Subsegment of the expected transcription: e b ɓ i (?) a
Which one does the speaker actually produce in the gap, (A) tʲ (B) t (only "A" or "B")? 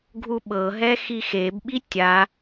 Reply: A